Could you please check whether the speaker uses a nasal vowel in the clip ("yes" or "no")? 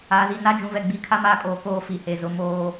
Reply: yes